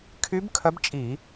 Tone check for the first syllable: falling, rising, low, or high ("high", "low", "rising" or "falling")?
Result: rising